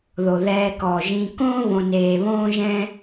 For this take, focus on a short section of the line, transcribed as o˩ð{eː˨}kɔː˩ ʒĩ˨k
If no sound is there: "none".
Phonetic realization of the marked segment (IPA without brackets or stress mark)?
ɛː˨